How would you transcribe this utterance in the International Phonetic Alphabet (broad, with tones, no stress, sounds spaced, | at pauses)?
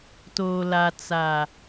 t oː˨ l a˨ t͡s a˨